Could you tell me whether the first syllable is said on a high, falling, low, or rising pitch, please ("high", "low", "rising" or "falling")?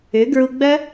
rising